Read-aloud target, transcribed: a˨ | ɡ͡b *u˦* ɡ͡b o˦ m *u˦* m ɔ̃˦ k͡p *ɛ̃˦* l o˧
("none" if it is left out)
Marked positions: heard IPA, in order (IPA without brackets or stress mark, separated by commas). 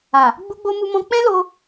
u˦, u˦, ɛ̃˦